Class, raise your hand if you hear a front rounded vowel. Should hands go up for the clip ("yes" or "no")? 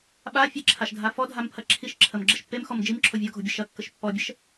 no